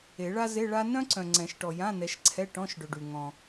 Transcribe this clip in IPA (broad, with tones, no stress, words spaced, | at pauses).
e˨˩˦ɭa˥ ze˧˥˧ɭa˥ nœ̃˥ǀœ̃˨ŋ͡ǀɛ̃˨˩˦ʃ ʈɔ˨jã˧˥˧nɛ˨˦ʃǀʰɛ˧˥˧ ʈɔ̃˧˥˧ʃɖø˨ɖy˨ ŋɔ̃˨